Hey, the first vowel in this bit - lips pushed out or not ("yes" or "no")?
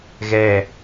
no